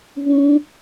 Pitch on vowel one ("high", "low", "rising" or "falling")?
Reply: high